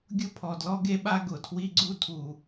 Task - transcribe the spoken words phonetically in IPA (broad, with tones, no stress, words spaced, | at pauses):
ɡʲʊ˦pʰɔ˩ dlɔ˥ɡe˥ɓa˥ ɡʊ˩tʰwi˦ɡ͡ǀu˥ tʰu˩